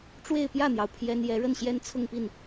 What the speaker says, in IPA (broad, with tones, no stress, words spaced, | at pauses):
ʈ͡ʂwe˥˧ɪ̯pjä˥˩n̪jɑ˩ʊ̯ pʰjɛ˥n jɛ˧˥ɻə˥˩nɕjɛ˥n t͡sʰʊ˥˧ŋpi˥˩n